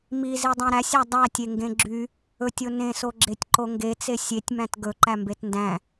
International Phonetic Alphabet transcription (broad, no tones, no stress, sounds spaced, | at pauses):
m i z i dˤ ẽ ɾ æ sʲ æ dˤ æ tʲ e ŋ ɡ ẽ ɡ͡ǁ y | ɵ tʲ o n ẽ s o ɡ͡ǁ e tʲ ǃ o ŋ ɡ e t͡s e sʲ e tʲ m æ̃ t ɡ ɵ ǃ æ m b e t n d æ̃